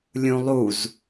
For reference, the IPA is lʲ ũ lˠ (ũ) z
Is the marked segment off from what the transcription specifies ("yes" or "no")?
yes